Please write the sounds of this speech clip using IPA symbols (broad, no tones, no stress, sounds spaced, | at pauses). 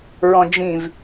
ɹ ɔ̃ d͡ʒ ĩ v